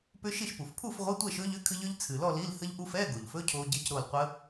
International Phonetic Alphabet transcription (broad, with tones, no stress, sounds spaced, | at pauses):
p ʏ˦˥ ʃ i˥˨ ʃ p u˨˩ f pʰ u˥˨ f ʁʷ i˧˥˧ tʷ ɛ˥˨ ʃ ɵ˦˥ ʎ ʏ˧˥˧ kʰ ɨ˦˥ ʎ ʏ˦˥ ʎ t͡sʰ ɨ˨˩ l ɔ˥˨ l i˧˥˧ l h ə˦˥ ʎ ʔ u˦˥ f ɛ˧˥˧ ɡ o˨˩ ʎ f ɵ˧˥˧ cʰ o˦˥ ɟ i˧˥˧ c ɾ o˥˨ l qʷ ə˦˥